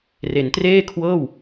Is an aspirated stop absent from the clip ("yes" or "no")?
no